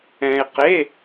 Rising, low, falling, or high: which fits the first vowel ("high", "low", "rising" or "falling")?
low